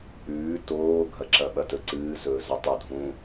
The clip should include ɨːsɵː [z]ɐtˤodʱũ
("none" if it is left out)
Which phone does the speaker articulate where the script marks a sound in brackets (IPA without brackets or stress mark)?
z